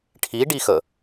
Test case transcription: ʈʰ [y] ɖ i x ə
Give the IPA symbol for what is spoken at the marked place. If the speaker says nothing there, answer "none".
i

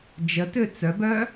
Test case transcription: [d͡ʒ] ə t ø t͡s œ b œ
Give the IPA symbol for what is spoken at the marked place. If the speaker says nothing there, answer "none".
d͡ʒ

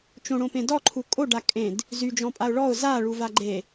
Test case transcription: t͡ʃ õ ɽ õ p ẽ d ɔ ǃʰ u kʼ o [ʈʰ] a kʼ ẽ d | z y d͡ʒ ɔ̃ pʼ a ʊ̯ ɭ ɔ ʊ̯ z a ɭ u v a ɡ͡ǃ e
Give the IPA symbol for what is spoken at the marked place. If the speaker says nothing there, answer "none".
ɖ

